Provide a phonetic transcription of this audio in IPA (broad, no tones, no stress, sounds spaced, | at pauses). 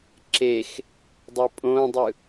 ǁ e x | dˤ ɯ pʼ õ dˤ ɯ